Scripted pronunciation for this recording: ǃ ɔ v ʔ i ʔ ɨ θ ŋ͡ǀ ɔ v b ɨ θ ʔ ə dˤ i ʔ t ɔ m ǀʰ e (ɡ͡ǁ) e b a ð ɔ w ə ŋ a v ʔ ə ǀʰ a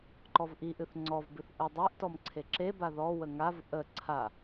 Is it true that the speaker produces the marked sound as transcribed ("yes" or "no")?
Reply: no